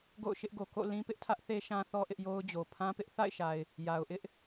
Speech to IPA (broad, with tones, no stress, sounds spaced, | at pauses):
ɡ o̰˦˨ ʊ̯ ʃ ɪ˦ ʔ ɡ o˨ k o̰˦˨ l ĩ˦ p ɪ˦ ʔ tʰ ä˦ ʔ θ e˦ ʃ ã˦ θ ɔ˦ ʔ ɪ˦ ʔ j o˦ ʊ̯ d͡ʑ o˨ pʰ ã˦ p ɪ˦ ʔ θ a̰˦˨ ɪ̯ ʃ a˨ ɪ̯ | j a˨ ʊ̯ ʔ ɪ˦ ʔ